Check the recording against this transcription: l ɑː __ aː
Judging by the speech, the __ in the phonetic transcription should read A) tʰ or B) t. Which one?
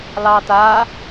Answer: B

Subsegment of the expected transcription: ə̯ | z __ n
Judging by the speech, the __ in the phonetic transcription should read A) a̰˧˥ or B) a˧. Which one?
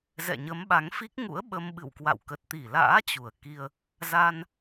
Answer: B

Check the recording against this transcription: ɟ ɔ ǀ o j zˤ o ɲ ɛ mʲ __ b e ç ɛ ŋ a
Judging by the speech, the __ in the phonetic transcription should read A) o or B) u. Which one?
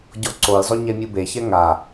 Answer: B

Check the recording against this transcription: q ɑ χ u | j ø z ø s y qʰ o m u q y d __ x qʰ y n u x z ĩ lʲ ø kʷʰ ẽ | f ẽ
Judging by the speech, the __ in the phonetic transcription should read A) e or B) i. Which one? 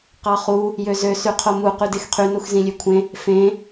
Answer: A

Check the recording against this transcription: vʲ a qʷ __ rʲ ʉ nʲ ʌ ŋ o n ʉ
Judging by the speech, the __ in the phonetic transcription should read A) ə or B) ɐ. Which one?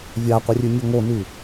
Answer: A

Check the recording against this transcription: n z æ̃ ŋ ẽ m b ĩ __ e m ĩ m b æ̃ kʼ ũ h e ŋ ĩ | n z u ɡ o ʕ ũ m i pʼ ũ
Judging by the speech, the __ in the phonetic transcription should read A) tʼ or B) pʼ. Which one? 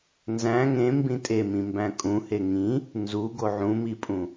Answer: A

